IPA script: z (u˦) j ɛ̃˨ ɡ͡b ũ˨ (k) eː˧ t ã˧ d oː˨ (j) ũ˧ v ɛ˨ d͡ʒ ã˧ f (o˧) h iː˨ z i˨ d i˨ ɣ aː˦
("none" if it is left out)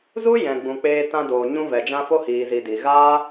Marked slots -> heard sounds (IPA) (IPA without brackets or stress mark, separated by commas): u˦, k͡p, ɲ, o˧